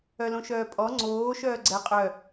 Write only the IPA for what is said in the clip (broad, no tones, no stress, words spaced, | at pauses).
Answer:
œlõʃœːpʼɔ ŋ͡ǀoː ʃœːɡ͡ǀɛ qʼœ